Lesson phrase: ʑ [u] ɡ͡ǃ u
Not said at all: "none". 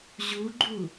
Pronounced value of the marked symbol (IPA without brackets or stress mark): u